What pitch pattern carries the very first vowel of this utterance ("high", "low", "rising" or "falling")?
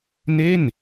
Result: falling